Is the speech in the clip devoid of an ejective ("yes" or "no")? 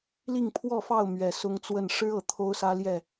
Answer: yes